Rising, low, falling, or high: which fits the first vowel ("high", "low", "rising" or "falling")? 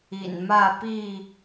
low